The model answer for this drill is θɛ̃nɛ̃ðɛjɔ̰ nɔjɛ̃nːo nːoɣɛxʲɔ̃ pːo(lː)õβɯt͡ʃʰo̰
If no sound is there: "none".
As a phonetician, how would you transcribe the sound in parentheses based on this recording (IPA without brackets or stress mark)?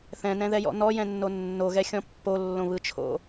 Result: lː